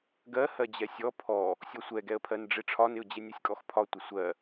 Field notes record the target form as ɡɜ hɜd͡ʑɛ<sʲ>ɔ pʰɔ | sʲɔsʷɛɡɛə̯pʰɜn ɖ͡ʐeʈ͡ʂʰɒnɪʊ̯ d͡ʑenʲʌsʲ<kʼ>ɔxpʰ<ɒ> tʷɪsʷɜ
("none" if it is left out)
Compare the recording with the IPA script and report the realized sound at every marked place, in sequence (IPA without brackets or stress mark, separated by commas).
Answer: sʲ, kʼ, ɒ